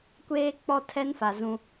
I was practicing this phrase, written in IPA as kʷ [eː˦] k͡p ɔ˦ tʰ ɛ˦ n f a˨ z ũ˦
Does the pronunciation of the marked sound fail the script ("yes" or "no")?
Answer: no